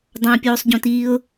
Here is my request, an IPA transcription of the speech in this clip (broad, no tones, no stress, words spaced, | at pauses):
dˤãpʲoːsˤɟõtiːʊ̯